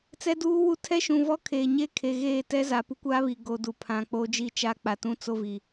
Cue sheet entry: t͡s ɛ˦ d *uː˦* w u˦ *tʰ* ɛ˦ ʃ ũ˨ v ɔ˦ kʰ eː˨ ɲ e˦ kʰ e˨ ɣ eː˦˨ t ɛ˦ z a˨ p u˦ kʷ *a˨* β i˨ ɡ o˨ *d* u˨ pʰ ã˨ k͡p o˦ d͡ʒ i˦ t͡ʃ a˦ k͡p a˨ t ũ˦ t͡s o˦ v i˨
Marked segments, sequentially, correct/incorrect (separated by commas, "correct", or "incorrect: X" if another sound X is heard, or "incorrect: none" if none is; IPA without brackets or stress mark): correct, correct, incorrect: a˦, correct